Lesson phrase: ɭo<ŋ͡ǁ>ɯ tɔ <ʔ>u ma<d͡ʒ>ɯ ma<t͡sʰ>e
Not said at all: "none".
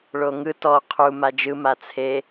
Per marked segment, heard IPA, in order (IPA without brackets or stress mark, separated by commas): ŋ, qʰ, d͡ʒ, t͡sʰ